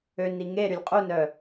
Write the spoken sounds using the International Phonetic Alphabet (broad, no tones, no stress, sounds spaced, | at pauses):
ø n i ŋ e ɾ y lʲ qʼ u n œ